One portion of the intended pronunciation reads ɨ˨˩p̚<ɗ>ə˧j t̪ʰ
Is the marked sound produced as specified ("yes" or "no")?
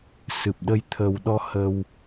yes